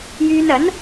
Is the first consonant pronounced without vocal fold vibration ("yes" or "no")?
no